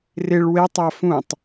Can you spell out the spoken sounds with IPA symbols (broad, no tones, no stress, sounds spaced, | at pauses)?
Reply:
r ɪ ɭ w e tˤ a f ũ tˤ